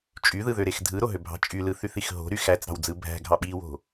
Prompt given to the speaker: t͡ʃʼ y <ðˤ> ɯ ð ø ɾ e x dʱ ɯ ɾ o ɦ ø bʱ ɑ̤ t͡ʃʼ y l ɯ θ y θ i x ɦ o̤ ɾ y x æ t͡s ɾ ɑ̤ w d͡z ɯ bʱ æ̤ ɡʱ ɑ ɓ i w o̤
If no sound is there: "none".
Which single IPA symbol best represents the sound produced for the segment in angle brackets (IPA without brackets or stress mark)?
ð